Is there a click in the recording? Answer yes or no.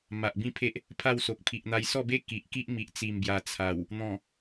no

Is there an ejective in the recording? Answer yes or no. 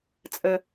yes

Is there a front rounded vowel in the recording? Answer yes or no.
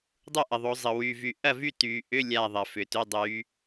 yes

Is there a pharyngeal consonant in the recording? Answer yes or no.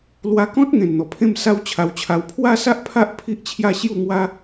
no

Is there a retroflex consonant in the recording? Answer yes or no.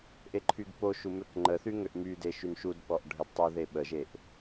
yes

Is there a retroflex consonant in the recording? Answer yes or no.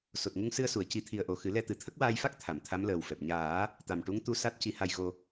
yes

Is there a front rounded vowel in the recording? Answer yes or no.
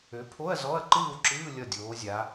yes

